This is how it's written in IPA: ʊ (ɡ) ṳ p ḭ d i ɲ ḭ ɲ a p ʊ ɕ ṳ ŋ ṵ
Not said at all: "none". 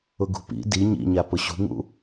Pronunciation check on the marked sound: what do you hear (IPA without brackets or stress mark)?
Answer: ɡ